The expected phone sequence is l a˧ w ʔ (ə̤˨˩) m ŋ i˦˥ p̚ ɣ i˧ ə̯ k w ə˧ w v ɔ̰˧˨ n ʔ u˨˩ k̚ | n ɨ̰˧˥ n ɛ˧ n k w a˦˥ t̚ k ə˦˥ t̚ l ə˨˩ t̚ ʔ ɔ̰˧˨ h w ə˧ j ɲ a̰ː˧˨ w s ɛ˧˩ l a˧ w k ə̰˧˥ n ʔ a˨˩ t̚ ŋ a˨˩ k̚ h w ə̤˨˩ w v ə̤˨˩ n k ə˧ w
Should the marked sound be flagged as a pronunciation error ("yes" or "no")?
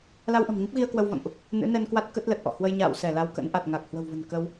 no